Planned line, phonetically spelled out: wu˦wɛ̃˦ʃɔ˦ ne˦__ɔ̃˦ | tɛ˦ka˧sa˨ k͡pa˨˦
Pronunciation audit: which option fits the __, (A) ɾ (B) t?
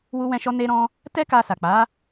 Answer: A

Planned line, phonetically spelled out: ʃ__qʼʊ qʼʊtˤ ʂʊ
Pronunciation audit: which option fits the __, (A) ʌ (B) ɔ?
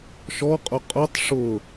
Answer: B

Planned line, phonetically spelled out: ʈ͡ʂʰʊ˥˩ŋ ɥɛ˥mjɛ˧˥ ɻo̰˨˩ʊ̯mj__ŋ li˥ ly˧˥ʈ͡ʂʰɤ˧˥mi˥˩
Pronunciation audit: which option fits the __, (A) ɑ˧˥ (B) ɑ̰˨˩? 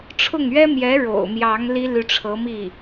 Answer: A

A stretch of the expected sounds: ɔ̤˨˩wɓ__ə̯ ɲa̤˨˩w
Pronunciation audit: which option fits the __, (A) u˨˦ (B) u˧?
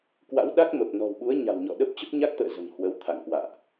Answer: A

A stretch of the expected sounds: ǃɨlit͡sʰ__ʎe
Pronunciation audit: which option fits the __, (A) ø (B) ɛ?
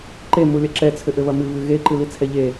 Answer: B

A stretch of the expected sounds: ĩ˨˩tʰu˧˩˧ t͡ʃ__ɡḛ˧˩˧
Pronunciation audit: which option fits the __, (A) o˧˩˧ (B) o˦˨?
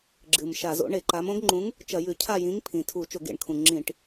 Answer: A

